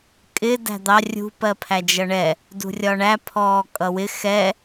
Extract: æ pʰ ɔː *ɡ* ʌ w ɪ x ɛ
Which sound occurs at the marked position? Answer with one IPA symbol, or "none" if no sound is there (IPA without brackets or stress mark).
kʼ